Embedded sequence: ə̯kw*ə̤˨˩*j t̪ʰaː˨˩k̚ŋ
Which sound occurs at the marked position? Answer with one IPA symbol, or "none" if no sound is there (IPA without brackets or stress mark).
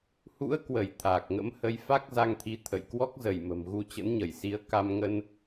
ə˧˩